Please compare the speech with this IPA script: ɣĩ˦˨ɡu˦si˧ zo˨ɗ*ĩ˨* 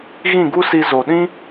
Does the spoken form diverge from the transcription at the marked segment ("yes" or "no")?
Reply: yes